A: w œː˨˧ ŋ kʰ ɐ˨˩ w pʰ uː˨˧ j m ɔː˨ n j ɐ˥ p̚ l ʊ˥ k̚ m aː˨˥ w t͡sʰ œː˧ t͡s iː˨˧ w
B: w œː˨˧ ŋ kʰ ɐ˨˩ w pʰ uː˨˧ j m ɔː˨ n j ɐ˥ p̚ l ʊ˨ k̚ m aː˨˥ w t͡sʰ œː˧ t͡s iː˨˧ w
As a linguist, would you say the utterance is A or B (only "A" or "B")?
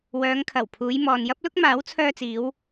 A